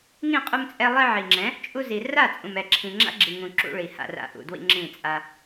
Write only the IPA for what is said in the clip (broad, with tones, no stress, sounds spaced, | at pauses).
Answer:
ŋ ĩ˦˨ qʼ u˧ m t͡sʼ ɛ˧ lˠ i˧ ʕ i˨ ŋ͡ǁ ɛ̃˨˦ | t͡ʃʼ u˧ z i˨ r a˦˨ t͡sʼ ũ˨ m ɛ˨ ǁʰ ĩ˨ ŋ͡ǁ a̰˦ ɡ͡ǁ i˨ ŋ ũ˨ ǁ ṵ˧ ɭ i˨ h a̰˧ r a̰˧ ʔ ṵ˨ d w ḭ˧ ŋ͡ǁ ĩ˦˨ t͡sʼ a˧